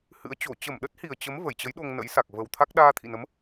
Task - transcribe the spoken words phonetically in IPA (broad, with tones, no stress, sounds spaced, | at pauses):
h ɨ̰˧˥ ə̯ t͡ɕ o˧˩ t͡ɕ ə˧˩ m ɗ ə˦˥ t̚ h i˨˩ ə̯ t͡ɕ ə˨˦ m v ə˧˩ j t͡ɕ ə˨˦ j ɗ o˧ ŋ n ə̰˧˥ j s a˨˩ k̚ v ə˨˩ w t̪ʰ a˦˥ k̚ ɗ aː˧ t̪ʰ ḭ˧˨ n ə˨˦ m